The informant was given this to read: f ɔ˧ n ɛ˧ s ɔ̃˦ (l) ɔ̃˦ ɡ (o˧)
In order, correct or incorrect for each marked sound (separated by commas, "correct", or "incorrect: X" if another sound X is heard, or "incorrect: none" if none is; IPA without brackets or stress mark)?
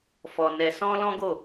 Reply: correct, incorrect: o˦˨